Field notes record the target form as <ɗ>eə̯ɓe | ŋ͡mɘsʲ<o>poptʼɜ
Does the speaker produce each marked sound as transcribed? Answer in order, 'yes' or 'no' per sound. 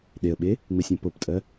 yes, no

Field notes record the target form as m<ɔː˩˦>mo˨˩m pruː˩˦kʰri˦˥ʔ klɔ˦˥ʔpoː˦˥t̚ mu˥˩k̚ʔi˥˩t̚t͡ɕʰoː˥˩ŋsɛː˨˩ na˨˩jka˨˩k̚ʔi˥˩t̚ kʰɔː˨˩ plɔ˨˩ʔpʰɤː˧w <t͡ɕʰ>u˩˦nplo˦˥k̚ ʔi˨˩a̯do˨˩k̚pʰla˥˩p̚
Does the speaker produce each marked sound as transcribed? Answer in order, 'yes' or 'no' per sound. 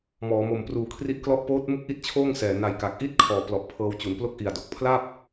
yes, no

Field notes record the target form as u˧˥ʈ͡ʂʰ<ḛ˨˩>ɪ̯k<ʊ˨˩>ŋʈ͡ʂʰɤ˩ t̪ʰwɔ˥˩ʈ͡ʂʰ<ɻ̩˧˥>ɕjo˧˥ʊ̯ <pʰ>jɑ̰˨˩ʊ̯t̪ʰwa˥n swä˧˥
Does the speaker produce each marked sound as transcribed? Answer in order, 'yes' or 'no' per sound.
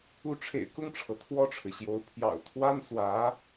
yes, no, no, yes

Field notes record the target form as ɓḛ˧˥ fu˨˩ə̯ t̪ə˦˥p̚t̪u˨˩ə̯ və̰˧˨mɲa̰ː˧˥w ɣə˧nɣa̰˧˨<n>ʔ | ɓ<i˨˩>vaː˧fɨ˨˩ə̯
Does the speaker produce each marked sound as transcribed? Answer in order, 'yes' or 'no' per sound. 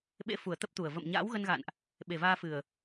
yes, no

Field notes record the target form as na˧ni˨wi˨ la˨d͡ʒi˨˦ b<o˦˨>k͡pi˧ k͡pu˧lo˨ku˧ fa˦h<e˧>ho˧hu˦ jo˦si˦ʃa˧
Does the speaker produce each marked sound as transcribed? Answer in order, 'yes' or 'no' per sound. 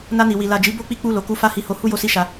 yes, no

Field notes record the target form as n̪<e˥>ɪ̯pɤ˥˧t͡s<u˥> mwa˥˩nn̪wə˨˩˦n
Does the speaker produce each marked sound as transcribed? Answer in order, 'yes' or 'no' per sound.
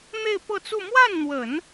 no, no

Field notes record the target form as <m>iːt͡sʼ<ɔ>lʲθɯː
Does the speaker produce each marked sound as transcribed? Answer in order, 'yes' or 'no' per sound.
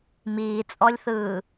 yes, yes

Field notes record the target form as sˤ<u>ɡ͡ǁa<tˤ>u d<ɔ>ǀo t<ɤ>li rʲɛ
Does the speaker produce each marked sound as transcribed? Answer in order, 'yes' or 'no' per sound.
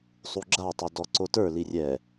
yes, yes, yes, no

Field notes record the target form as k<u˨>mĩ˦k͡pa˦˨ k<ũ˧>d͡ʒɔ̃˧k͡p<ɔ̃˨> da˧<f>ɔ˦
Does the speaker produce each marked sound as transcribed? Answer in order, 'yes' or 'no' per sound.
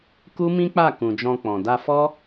no, no, yes, yes

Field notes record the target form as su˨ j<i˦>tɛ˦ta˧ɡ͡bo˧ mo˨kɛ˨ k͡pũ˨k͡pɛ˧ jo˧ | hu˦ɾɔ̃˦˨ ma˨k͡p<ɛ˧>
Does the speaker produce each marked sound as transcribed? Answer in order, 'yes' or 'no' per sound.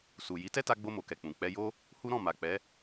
no, no

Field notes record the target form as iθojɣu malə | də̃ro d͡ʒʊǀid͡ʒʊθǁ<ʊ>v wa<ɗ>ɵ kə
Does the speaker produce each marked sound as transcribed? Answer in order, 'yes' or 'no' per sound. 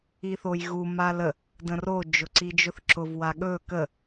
yes, no

